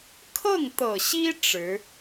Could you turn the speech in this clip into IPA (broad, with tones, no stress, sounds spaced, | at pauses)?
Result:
kʰ ɤ˥˩ ŋ t̪ ɤ˨˩ ɕ i˥ ʈ͡ʂ ɻ̩˧˥